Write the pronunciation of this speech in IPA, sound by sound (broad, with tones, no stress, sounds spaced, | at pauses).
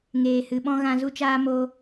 ŋ eː˨ h ɨ˨ ɓ ɔ̃˦ ɣ ã˧ z u˦ t͡ʃ aː˦ m o˧